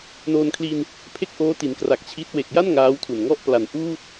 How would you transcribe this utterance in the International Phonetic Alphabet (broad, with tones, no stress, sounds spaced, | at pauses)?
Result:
n oː˧ n kʰ l i˧ n | pʰ e˥˩ k̚ ʔ oː˦˥ t i˩˦ n k r a˨˩ k̚ t͡ɕʰ i˦˥ t̚ w e˨˩ k̚ j a˥˩ n ŋ aː˦˥ w tʰ u˨˩ n ŋ ɔ˦˥ ʔ p l a˩˦ n ʔ uː˥˩ t̚